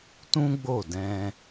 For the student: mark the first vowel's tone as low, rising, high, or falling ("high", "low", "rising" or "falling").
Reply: high